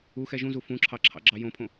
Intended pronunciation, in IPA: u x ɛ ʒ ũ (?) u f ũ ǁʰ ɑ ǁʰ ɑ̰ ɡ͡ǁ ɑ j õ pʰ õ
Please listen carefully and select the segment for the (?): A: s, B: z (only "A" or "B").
B